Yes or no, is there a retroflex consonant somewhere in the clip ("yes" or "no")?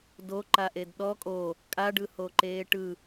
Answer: yes